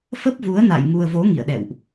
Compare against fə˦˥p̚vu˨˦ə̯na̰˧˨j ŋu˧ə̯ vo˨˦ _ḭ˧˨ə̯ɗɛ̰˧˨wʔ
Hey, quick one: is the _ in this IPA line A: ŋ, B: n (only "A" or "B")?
A